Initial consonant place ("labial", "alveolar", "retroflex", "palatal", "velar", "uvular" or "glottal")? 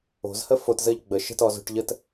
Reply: alveolar